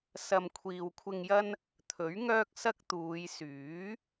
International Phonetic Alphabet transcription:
sɐ˨mkʷʰiː˨wkʷʰɪ˧ŋjɐ˥n | t̪ʰɵ˨˥ɥŋœː˥k̚sɐ˥k̚t̪uː˨˧j syː˨˥

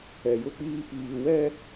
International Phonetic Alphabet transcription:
ɛ˨jʊ˦k͡piː˦ piː˨wɛ˦

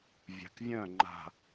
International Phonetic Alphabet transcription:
vʲa̤˨kvʲœ̃˦˨ŋ͡ǃa̤˨

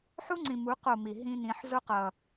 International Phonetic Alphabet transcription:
ħu˦ŋ͡ǀĩ˨mu˨˦ qo˦˨mi˨ ɦĩ˦nĩ˨˦ħ zo˦qʌ˨

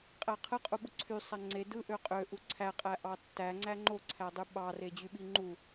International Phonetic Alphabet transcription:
qʼæqʰɯ qʼuɓuǀʰy sˤæŋ͡ǀe dɯ ʔøqʼø ʔuǀʰæ qʼæʔɑtːæŋ͡ǀæ ŋ͡ǃoǀʰædˤy ɓɑre d͡ʑyɓiŋ͡ǃu

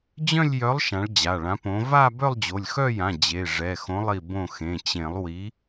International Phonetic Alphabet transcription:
d͡ʑœ̃˥˧lʲjœ˨˥lˠ ʃã˨˥ɭd͡ʑa˩˧˩ɭã˨˥põ˨˥ va˥˧ bœ˥˧lˠd͡ʑo˩˧˩lʲxœ˥˧jã˩˧˩ d͡ʑe˩˧˩ʐɛ˩˧˩xõ˨˥lˠi˧˩ bõ˧˩xẽ˩˧˩t͡ɕẽ˨˩˦lˠ wi˨˥

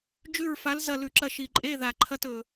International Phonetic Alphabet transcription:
d͡ʒʉ˦˨ɹfa˨˥l zɐ˦˨lʉ˨˩ǁɐ˦˨ ʃi˨˩ǃʼe˧˥˧ ða˨˩ǃʰɐ˧˥˧tɵ˨˩

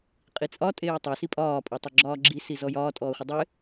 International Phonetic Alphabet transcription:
qʼit͡sʼɒ tʼeːtˤo sipʼɒːpʼotˤe ɡ͡ǁɒːɡ͡ǁisizɔ jɒːtʼɔːχʷɪ dˤɪ

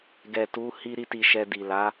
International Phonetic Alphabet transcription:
ɡɛ˨tu˨˦ hi˦ɾi˦ti˧ ʃɛ˧ di˨la˨˦

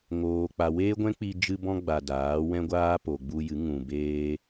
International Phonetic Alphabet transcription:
ŋoː˧k͡pa˧ weː˦ɡʷɛ̃˦k͡pi˧ d͡ʒɨ˧bɔ̃˧ɡ͡ba˨ daː˨˦wɛ̃˦ɡʷaː˦ po˨ɡ͡bu˧jɨ˨˦ ŋũ˨beː˧

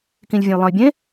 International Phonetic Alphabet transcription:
kĩlʲvʲɐ̃jlˠɐ̃y̯bʲẽ

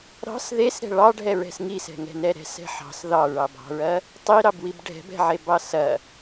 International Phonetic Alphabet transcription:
ɾɑ̤s ðesɾɛ̤ ɭɑɖʱɛɹɛ̤s ŋisɛ̤ŋɛ̤nɛ ɾɛ̤sɛ̤ ħɑ̤s ðɑɹɑbɑ̤ɹɐ | tˤiɾɑbwib ɖʱɛ̤bɛ̤ʕebɑ sɐ

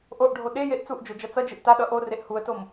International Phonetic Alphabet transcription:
ʔoʔɖʱo ɗejeʔ t͡suʔd͡ʒo d͡ʒʌt͡sʌd͡ʒɯʔ taɗʌ ʔoreʔ huə̯tom

